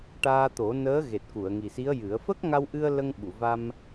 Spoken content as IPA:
ʈ aː˧ t̪ o˨˩˦ n əː˧˥ ɣ e˨˩ t̚ k u˨˩˨ ə̯ ŋ i˨˩ s i˧˥ ə̯ j ɨ˨˩˦ ə̯ f ə˦˥ k̚ ŋ a˧ w ʔ ɨ˧ ə̯ l ə˧ ŋ ɓ u˨˩˨ v a˧ m

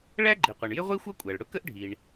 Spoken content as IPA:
ɭ æ˥ ɡ͡ǃ i˩ qʷ ʌ˩ ɳ j ɪ˥ ʁʷ i˥ xʷ ʌ˥ kʷʼ æ˩ ɭ ɽ ʊ˥ k ə˥ ʔ ɖʱ i˩ ɳ

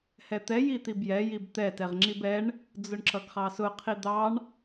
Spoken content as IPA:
h ɛ t̪ ɛ j i t̪ i b j ɛ j i b t̪ ɛ t ɛ ʁ ŋ͡ǁ i b ɛ ɳ | d͡z ʊ ɳ ǁ ʌ ɡ χ ɑ s ʊ qʰ i d̪ ɑ ɳ

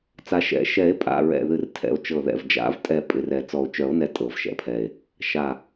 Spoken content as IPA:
t͡s a˨˩˦ ʃ ɛ̰˨˩˦ ʃ ɛ˨˩˦ e̯ pʼ a̰˩˧˩ ɹ ɛ̰˧˩ ð ɨ˧˩ r tʰ ɛ̰˧˩ o̯ t͡ʃ ɤ˧˩ ð ɛ̰˧˩ v d͡ʒ a̰˨˩˦ v tʼ ɛ˧˩ pʼ ɪ˩˧˩ r ɛ˨˩˦ t͡s ɔ˧˩ o̯ t͡ʃ œ˨˩˦ o̯ n ɛ˧˩ tʼ ɤ˨˩˦ v ʃ ɛ̰˩˧˩ pʰ ɛ˧˩ e̯ | ʃ a˧˩

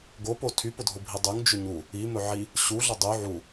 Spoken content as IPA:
ɡ o p o tʰ y p ʊ dʱ ʊ bʱ i dˤ y ŋ d͡ʒ ɵ ɲ u | i m ɵ ʕ i | ɕ u ɮ ʊ dˤ y ʕ u

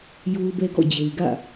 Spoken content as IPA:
j o˦ ʊ̯ b ɛ˦ ɡ ɔ̰˦˨ d͡ʑ e˨ ɪ̯ ɡ ä̰˦˨

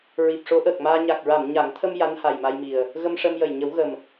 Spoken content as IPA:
ɹ i˨˩ p̚ ʂ o˧˥ ʔ əː˨˩ k̚ m aː˧ ɲ a˨˩ k̚ ɹ a˨˩˨ m ɲ a˨˩˦ ŋ t̪ʰ ə˧ m j a˧˥ n h a˨˩ j m a˧ j m i˨˩ ə̯ | ɣ ə˧ m ʂ ə˧ m j ə˨˩ j ɲ ə˨˩˦ w ɣ ə˨˩ m

